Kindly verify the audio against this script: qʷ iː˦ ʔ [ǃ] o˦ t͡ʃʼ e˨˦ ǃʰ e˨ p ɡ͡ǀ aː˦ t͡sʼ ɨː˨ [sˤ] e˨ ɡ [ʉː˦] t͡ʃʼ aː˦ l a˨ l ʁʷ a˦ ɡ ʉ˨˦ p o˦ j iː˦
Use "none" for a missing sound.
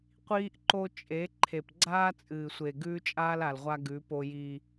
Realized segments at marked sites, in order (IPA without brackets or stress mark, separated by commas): ǃ, sʷ, ʉː˦